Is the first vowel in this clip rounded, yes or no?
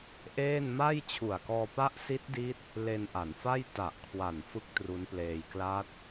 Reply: no